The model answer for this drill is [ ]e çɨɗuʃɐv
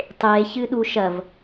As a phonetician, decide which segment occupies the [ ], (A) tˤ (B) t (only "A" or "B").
A